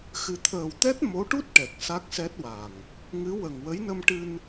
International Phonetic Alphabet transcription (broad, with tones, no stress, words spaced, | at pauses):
xɨ˨˩t̪ʰəː˨˩wt̪ɛ˦˥t̚ mo˧˥ʈu˦˥t̚ʈɛ˨˩k̚ sa˦˥k̚sɛ˦˥t̚wa˨˩ŋ | ŋɨ˧˥wə˨˩ŋwə˧˥j nə˧mʈɨ˧n